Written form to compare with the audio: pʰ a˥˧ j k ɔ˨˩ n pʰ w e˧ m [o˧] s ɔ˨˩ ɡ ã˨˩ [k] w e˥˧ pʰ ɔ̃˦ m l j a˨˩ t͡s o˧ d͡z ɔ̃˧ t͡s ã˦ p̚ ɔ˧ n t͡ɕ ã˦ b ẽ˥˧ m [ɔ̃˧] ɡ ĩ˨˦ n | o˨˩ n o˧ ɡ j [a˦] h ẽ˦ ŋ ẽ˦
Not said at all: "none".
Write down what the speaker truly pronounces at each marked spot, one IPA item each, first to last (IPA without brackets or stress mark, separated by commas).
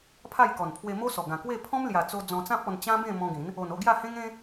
o˦, k, ɔ̃˧, a˥˧